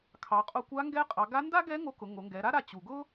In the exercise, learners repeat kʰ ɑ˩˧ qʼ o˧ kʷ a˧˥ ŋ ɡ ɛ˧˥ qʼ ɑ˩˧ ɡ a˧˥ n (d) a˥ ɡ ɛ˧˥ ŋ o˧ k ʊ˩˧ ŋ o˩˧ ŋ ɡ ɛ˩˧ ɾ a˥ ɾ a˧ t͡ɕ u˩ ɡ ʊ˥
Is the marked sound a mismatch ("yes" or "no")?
no